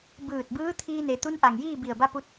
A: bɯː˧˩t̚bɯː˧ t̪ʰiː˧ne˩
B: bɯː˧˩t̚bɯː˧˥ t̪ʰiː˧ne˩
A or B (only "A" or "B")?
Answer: B